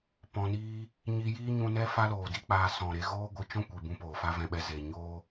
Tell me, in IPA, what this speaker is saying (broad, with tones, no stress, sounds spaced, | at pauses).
p ɔ̃˧ n iː˦ | ɲ i˧ j iː˦ ɲ ũ˧ n ɛ˦ f a˦ l oː˨ d i˦ k͡p aː˧ s ɔ̃˨ ɾ e˧ ɣ oː˦ ɡʷ ɨ˧ t͡ʃ ɔ̃˦ kʷ i˨ b ũ˧ p oː˨ f a˦ v ɛ̃˧ ɓ ɛ˧ z e˨ ɲ oː˦